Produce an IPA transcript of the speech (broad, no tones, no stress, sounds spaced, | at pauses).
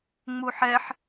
ŋ͡m u ħ ɛ ħ